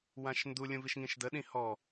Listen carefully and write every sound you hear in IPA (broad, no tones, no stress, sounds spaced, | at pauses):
w ã ʃ n d u lʲ ũ v i ʃ ŋ ĩ ʃ d ə ɗ ĩ h ɔ